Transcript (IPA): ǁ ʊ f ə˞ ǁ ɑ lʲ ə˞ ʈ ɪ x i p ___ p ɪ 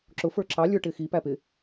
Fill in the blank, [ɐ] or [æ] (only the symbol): æ